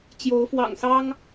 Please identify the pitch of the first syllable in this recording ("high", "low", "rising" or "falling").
rising